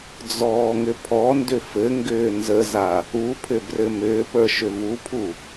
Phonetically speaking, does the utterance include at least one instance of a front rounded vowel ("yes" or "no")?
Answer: yes